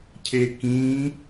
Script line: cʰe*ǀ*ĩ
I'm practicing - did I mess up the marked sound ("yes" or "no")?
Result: yes